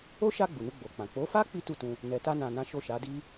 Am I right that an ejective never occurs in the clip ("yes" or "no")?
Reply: yes